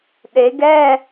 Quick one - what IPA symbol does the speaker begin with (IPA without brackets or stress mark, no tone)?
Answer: ɗ